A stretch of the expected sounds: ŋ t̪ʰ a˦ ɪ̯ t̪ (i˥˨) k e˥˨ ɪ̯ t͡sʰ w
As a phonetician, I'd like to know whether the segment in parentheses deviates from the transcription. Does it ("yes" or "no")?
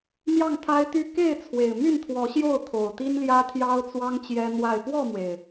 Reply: yes